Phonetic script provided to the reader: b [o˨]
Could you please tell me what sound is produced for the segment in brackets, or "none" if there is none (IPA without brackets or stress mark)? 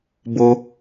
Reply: o˦